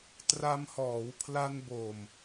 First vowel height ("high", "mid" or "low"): low